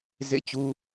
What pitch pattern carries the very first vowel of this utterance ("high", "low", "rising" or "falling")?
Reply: falling